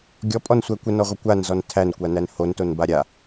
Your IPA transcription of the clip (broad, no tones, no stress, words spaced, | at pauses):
ɡʲɔpʼɔnsʷæ kʷənɔʁʷə kʷanzɔn tʰænkʷanæn hontonba ɾʲa